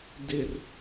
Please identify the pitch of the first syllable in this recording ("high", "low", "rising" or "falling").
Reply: low